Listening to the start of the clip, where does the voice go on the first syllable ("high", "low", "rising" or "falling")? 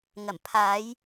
low